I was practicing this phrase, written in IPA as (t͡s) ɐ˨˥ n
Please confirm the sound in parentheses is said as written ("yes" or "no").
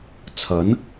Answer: no